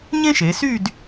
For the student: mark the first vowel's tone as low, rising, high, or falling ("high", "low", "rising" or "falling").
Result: high